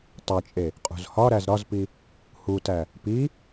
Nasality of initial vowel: oral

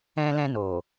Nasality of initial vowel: nasal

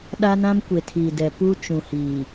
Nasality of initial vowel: oral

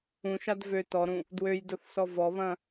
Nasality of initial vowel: nasal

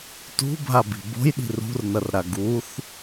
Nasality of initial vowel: oral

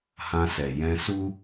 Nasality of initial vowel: nasal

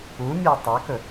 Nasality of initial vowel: oral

